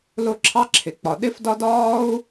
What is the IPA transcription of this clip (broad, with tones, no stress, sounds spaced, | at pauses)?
l ʊ˦ ǁʰ ɑ˥ ǁʰ ɪ˩ k͡p ɒ˩ ɗ ɪ˥ f d ɒ˥ d ɒː˥ u̯